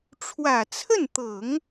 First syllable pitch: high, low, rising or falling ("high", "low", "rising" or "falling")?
low